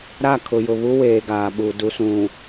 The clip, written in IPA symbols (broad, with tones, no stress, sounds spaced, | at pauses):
ɾ a˦˨ kʰ ʊ˨ j ʊ˨ β u˦ w eː˨ ɡ aː˨ ɓ u˨ d u˨ s ũ˨